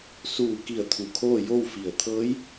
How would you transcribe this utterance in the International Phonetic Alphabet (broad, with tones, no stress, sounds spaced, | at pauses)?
s uː˧˩ k i˧˩ ə̯ t̪ʰ u˧˩ kʰ oː˥˨ j o˥˨ w f i˧˩ ə̯ t̪ʰ ɤː˧˥ j